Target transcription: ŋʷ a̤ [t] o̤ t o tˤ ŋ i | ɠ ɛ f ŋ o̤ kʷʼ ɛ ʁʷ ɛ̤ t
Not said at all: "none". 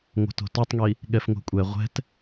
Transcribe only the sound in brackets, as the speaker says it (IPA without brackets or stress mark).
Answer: t